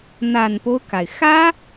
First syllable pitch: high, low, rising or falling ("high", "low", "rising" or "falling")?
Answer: low